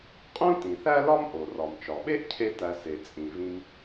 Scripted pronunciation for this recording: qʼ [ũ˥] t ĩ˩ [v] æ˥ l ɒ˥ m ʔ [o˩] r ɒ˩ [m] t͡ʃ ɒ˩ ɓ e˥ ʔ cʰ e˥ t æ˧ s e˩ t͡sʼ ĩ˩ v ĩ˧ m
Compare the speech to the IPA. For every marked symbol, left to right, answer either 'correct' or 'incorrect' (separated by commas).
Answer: correct, incorrect, correct, correct